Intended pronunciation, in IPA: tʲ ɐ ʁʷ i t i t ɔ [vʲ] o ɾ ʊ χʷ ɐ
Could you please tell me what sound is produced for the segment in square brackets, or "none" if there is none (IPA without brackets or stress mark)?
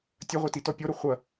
pʲ